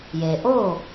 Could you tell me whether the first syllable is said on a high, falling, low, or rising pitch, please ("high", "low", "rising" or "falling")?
low